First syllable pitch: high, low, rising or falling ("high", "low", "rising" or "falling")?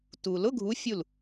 low